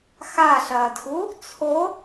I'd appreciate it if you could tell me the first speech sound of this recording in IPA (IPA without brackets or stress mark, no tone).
x